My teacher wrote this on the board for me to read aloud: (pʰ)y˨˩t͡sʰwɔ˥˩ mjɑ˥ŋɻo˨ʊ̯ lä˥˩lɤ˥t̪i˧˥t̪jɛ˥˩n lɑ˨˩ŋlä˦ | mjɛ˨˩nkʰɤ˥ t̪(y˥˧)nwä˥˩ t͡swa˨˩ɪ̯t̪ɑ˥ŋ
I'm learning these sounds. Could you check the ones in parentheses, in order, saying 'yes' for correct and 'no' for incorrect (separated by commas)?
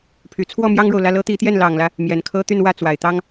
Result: yes, yes